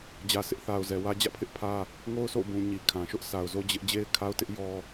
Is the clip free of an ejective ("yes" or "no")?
yes